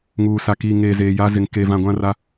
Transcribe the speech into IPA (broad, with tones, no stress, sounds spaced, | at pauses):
ŋ uː˨ s a˨ k iː˨ ŋ eː˨ z eː˨ j a˦ z ɪ˨ ŋ k e˨ v ã˨ ɡʷ ã˦ r a˦